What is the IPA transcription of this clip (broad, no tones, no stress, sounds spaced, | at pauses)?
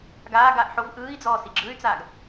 ɡ aː ɡ aː ʔ ħ o v ʔ ɯː i̯ d͡z ɔː s i ɡ͡ǁ ɯ y̯ t͡s aː ɡ